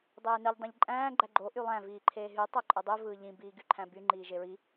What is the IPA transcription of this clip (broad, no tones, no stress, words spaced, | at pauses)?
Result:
dˤeːnɯʎ dˤẽʎǃʼæ̃ː ɡ͡ǃæɡ͡ǃo ʔylˠæ̃ viːǃʰeːɦy tˤoǃʼɯdˤy vɯːʎĩ biːɡyǃʰæ̃by ŋ͡ǃiːʒeɹi